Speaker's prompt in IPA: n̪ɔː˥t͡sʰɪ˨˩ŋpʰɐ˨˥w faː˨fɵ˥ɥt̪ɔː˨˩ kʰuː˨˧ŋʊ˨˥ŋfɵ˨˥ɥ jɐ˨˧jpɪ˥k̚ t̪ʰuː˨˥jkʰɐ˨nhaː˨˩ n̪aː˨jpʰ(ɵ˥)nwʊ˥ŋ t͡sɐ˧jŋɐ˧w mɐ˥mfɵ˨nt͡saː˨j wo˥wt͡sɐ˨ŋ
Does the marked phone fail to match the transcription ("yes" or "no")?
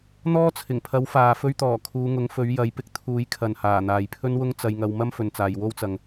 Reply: no